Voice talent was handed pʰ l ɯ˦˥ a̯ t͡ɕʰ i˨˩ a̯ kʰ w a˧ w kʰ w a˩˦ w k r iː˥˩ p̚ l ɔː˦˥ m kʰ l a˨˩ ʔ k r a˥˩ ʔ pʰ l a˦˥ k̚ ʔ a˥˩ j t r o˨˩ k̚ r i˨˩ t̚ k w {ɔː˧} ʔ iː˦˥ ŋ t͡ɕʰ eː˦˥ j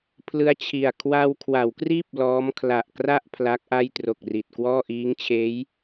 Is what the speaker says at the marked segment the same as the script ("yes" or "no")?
no